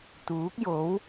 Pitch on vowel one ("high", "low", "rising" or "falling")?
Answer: rising